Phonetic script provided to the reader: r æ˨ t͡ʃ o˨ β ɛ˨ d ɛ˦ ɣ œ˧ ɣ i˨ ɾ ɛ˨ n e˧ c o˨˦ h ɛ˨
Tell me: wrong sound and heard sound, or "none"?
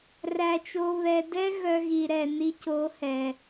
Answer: e˧ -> i˧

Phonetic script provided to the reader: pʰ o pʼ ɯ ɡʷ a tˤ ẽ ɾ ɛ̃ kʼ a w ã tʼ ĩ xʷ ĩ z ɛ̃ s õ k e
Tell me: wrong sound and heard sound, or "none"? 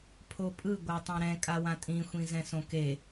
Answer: none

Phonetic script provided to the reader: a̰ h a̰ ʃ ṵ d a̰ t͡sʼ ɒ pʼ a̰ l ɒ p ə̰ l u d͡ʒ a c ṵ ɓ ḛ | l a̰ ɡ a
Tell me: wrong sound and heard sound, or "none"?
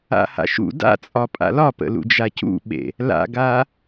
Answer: u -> ṵ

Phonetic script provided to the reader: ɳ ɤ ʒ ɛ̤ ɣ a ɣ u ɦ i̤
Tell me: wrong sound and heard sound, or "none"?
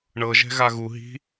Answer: none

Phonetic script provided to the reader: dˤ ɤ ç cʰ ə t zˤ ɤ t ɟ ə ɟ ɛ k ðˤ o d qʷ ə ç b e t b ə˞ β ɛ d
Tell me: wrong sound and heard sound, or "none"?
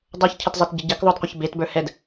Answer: β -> h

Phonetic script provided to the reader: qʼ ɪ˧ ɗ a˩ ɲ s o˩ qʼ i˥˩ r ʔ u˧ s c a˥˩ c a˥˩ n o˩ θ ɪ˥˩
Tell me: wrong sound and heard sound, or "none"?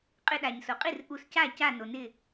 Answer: θ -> n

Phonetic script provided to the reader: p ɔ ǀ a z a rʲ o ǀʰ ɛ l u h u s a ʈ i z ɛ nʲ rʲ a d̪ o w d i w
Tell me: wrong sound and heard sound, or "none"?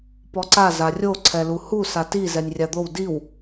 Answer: ʈ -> t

